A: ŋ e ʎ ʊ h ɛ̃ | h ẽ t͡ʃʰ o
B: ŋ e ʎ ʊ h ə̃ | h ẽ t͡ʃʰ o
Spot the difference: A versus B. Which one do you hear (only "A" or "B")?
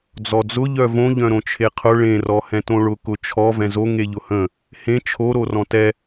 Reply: B